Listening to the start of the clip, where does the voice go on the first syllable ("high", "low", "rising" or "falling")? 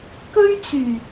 high